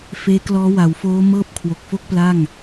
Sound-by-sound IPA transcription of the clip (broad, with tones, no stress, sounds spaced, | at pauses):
f eː˦˥ k l ɔː˦˥ w a˩˦ w f oː˦˥ m ɤː˥˩ p̚ kʰ w o˨˩ k̚ f o˥˩ k̚ p l a˥˩ ŋ